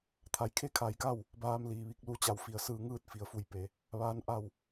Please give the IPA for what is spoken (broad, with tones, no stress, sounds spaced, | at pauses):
t̪ʰ a˩˧ j kʰ e˥˨ kʰ a˧˩ j k a˥˨ w | b aː˧ m l iː˩ ʋ i˧ k̚ l u˧ t͡ɕ a˧˩ w f i˩ ə̯ s ɯː˧ ŋ ɯː˥˨ t̚ f i˩˧ ə̯ f u˧˩ j p e˩˧ | ʋ aː˧˥ n ʔ a˥˨ w